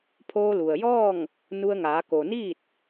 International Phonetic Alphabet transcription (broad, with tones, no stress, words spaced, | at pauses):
pʰoː˧lu˩ə̯jɔː˥˨ŋ | nu˧ə̯ŋaː˩˧ ko˩niː˥˨t̚